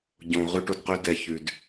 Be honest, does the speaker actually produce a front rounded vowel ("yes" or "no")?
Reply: yes